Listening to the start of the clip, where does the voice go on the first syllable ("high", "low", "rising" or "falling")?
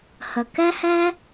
low